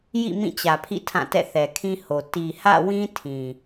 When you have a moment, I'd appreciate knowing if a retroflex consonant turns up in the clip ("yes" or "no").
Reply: no